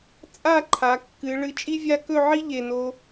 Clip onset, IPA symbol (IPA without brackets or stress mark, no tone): t͡sʼ